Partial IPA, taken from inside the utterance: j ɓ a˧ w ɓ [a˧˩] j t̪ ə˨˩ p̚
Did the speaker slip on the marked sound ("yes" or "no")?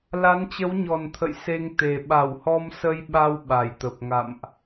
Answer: no